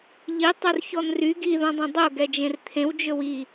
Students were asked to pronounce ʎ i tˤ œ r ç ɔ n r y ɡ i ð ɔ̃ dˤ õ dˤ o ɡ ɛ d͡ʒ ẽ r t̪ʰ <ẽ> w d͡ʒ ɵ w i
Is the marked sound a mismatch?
no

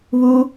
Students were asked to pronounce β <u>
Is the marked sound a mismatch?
no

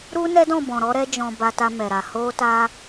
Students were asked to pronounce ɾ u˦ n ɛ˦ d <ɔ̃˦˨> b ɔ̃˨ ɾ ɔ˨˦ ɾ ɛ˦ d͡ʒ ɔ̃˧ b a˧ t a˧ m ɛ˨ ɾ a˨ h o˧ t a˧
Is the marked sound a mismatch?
no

